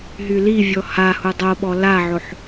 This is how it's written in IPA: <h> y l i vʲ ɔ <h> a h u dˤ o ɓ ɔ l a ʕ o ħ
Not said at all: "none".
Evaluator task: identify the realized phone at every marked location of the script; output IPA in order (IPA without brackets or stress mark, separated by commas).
ɦ, h